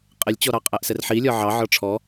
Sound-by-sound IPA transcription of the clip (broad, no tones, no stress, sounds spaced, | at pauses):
qʼ ɪ lʲ t͡ɕ ɔ ɾ ɑ qʼ æ ʔ s ɛ r ħ i lʲ ɒ ʕ ɑ ʕ ɒ ʈ͡ʂʰ ɔ